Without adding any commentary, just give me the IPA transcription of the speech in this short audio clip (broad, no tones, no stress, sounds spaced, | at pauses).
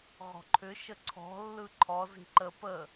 ʁ ɔ̤ ǃʰ ʏ ʃ ə ǀʰ ɔ̤ lː ɯ ǃʰ ɔ z i̤ ǃ ə p ə